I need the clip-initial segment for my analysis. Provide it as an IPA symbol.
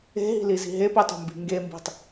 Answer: e̤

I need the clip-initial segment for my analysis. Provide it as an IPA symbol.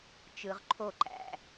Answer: t͡ʃ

